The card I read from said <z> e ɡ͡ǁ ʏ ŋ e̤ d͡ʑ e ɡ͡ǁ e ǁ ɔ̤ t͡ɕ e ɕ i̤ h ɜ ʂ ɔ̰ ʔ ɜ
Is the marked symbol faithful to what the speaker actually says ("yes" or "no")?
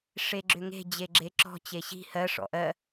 no